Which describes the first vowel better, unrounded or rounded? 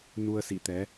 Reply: rounded